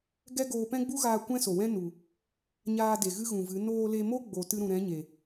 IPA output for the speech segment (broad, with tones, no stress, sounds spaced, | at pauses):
ɡ ɛ˦ ɡ oː˧ p ɛ̃˦ ɡ͡b u˦ ɣ aː˧ kʷ ɛ̃˦ s o˨ w ɛ̃˦ n u˨ | ɲ aː˧ d e˨ ɣ ɨ˦ ɣ ũ˨ v ɨ˨˦ n oː˧ l e˧ m o˦ ɡ͡b o˨ t ɨ˧ ɾ ũ˨ ɾ ɛ̃˨˦ ɲ e˨